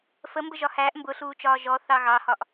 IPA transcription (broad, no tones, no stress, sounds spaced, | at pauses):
f ə m b ə ʒ ɒ h æː ʔ m b ʊ ɬ uː t͡ʃ ɒː ʒ ɔ θ ɑ ɣ ɑ h ɒ ʔ